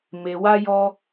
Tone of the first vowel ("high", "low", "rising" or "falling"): low